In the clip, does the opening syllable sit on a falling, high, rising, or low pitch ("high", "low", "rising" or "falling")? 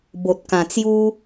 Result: low